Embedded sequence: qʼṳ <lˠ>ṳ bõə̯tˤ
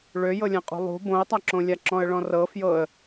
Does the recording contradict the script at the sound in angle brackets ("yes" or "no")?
no